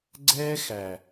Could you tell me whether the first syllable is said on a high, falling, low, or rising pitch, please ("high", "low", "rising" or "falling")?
high